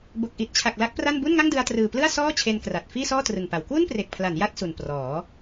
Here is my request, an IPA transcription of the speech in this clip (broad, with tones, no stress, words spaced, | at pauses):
bo˨˩k̚ʔi˨˩t̚t͡ɕʰa˨˩k̚ la˦˥k̚pra˥˩n bu˥˩nŋa˥˩ŋdɯ˧a̯trɯː˨˩ plɯ˥˩a̯sɔː˥˩ t͡ɕʰe˧nkra˨˩t̚ fiː˥˩sɔː˥˩trɯ˨˩ŋpa˩˦w kwu˥˩npre˨˩k̚pʰla˩˦n ja˥˩t̚su˨˩n prɔː˩˦